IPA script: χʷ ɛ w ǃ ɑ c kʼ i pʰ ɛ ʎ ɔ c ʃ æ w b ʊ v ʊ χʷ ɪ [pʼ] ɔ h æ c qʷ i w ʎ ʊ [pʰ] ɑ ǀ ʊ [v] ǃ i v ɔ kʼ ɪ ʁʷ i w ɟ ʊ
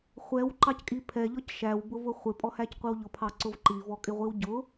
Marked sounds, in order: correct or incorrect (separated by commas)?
correct, correct, correct